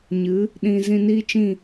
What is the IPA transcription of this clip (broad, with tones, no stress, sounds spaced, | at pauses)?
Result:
ɲ ɨ˨˦ | ɗ ĩ˧ z ĩ˧ n iː˦ t͡ʃ ĩ˦˨